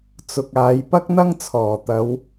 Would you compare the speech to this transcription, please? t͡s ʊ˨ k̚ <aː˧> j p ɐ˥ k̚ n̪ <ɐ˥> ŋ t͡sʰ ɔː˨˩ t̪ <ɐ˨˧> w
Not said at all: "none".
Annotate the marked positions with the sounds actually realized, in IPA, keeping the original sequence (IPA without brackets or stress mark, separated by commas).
aː˨˧, ɐ˥, ɐ˨˧